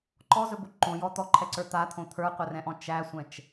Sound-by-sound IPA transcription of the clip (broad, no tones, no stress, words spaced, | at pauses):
ǃɔzɵbo ǃõjɔ t̪ɔǃʰɛǀə˞ t̪at̪ʰõ t̪ʰə˞qʷɛrɛ̃ʔɔ̃ t͡ʃæsʷɛ̃t͡ʃ